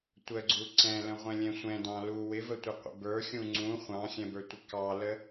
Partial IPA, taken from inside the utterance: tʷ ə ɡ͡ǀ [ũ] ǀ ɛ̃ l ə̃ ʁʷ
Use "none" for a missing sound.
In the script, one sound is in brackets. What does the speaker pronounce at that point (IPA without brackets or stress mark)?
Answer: u